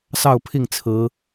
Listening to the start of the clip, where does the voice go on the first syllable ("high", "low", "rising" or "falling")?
falling